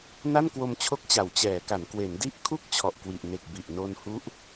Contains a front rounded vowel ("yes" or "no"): no